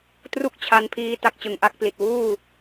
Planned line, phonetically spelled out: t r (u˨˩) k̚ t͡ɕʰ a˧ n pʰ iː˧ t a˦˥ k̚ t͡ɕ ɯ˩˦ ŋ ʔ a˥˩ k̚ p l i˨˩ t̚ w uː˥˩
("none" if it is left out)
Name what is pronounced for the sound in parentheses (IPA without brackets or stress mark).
u˥˩